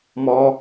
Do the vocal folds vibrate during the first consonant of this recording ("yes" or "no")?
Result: yes